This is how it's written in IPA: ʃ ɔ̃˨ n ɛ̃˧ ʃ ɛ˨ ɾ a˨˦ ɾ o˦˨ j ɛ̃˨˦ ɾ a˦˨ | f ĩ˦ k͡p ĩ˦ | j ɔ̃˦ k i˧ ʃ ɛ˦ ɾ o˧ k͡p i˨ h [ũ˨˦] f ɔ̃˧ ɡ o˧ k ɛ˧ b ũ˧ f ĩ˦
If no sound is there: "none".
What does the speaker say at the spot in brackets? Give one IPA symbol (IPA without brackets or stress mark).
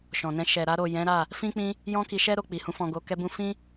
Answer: ũ˨˦